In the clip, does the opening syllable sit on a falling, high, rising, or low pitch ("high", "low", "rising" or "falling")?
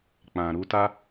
low